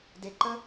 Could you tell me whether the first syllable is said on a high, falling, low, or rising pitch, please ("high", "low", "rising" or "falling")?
low